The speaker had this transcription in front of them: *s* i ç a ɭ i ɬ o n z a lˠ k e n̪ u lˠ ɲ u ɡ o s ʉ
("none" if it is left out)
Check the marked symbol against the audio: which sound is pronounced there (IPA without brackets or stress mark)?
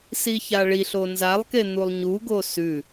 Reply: s